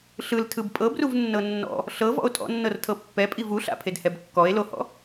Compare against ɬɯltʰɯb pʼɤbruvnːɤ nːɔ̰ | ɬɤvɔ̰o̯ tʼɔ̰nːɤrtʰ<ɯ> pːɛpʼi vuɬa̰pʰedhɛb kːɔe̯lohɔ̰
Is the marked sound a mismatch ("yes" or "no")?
yes